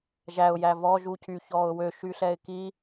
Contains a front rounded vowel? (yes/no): yes